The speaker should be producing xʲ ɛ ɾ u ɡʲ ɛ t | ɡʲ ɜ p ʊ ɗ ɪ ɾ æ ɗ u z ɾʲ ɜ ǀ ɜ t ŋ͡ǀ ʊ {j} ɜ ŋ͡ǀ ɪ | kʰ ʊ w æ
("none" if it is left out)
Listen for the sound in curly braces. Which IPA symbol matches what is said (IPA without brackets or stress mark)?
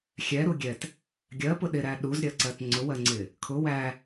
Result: w